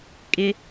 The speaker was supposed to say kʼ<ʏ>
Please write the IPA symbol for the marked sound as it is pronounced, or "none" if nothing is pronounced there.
ɪ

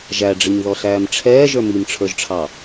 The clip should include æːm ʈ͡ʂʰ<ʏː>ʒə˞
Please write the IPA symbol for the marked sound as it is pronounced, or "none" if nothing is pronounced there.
ɛː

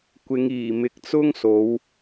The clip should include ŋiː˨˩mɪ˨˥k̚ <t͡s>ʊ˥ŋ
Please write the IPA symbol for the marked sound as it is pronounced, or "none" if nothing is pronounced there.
t͡s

